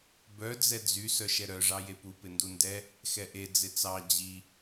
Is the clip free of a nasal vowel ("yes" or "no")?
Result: yes